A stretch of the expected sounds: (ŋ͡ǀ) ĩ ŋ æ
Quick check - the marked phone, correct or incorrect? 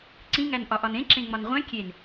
incorrect